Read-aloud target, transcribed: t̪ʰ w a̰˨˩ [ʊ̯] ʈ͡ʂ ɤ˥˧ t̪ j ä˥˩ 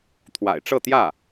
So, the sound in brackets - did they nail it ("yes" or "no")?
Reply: no